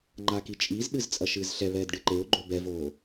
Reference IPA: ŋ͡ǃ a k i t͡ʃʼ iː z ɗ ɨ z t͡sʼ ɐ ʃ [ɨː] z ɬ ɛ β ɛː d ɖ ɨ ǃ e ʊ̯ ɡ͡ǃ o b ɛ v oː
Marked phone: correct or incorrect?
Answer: correct